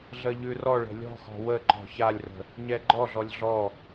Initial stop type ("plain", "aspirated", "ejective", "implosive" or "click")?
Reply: click